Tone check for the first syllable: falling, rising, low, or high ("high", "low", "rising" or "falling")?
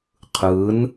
rising